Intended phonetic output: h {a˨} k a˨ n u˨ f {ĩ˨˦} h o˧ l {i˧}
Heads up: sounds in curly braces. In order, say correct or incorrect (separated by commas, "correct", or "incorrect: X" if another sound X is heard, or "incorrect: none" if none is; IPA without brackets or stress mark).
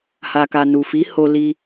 correct, incorrect: i˨˦, correct